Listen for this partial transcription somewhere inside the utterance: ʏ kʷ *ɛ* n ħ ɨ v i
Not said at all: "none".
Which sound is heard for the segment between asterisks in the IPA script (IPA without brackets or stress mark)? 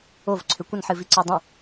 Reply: ə